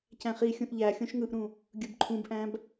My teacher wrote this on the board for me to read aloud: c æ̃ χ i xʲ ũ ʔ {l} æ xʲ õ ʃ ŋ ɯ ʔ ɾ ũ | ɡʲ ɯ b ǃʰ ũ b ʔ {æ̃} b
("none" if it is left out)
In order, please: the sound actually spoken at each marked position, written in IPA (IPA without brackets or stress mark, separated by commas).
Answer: ʎ, æ̃